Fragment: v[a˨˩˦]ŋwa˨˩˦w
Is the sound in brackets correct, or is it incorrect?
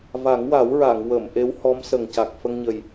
correct